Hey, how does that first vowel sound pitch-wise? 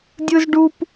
high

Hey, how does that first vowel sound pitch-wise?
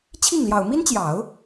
falling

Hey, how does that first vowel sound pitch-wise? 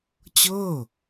falling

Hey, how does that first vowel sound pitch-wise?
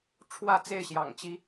falling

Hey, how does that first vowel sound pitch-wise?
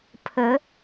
rising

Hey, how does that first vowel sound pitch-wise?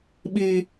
high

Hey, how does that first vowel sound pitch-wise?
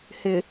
low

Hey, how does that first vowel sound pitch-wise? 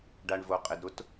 low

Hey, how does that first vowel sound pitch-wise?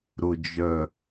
low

